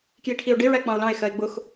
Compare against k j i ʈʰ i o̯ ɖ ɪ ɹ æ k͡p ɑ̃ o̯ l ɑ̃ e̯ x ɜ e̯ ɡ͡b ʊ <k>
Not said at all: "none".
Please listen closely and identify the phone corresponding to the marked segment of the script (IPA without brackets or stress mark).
x